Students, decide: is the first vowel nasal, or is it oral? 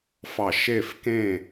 oral